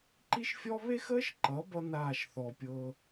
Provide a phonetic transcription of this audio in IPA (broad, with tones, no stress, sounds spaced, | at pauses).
ǃ i˦ ʃ fʲ ɔ˦ β e˦ x əː˦ ʃ ǃ ʌ˨˦ b ʌ˦ n aː˦˨ ʃ θ ɔ˧ pʲ ɤː˦